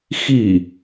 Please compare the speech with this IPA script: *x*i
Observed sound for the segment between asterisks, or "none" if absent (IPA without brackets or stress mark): x